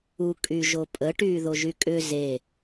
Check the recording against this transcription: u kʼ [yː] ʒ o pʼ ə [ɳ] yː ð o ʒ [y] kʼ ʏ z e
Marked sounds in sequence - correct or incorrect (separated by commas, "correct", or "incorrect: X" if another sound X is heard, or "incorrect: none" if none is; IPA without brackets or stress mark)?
incorrect: y, incorrect: ʈ, correct